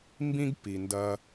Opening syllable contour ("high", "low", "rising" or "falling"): high